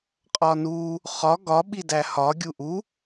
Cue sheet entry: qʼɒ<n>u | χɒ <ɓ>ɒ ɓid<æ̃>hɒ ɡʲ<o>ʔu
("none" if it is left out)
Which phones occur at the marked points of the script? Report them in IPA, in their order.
n, ɡ, æ, u

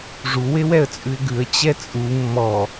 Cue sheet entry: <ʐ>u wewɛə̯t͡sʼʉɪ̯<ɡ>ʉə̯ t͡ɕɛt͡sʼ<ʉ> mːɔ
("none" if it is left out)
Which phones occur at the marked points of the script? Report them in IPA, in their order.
ʐ, ɡ, u

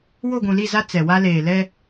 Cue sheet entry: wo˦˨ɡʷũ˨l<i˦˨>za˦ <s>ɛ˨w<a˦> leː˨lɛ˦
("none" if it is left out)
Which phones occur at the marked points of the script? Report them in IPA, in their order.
i˦˨, t͡s, a˦

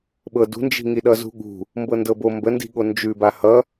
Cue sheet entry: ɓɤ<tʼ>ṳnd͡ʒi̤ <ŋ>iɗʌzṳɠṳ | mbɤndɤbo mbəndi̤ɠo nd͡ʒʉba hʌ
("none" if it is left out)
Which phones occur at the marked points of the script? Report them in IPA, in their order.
d, ŋ

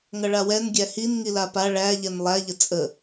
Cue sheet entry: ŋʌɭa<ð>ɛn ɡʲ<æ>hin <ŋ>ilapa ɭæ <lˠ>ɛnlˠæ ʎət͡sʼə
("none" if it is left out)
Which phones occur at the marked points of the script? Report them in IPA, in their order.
w, æ, ŋ, ʎ

